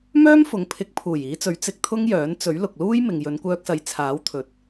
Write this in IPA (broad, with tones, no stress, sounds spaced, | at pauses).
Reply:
m œː˥ m f ʊ˨˧ ŋ pʰ ɪ˧ k̚ pʰ uː˨˩ j iː˨˧ t͡s ɵ˨˥ ɥ t͡s ɪ˧ k̚ t̪ʰ ʊ˥ ŋ j œː˨˥ n t͡s ɵ˨˥ ɥ l ʊ˨ k̚ l uː˥ j m ɪ˨ ŋ j ɵ˨˧ n kʷ œː˧ k̚ s ɐ˨˧ j t͡sʰ aː˨˥ w t̪ʰ ɵ˨ t̚